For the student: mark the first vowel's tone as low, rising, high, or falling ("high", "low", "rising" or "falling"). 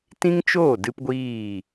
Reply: high